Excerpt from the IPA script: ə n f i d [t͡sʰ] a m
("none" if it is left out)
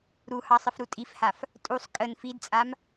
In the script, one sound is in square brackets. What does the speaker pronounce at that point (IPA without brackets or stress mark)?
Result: t͡sʼ